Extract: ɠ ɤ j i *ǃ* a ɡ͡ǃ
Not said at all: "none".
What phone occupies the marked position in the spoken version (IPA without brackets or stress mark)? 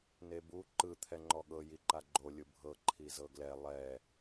ǃ